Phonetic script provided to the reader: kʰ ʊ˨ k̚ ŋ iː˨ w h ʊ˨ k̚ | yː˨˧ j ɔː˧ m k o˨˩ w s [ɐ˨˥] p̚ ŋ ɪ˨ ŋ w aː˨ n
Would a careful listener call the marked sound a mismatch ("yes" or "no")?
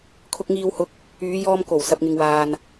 yes